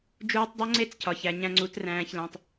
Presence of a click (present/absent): present